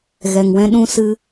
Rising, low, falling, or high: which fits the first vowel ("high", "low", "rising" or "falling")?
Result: low